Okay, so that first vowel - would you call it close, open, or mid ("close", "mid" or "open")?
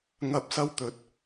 open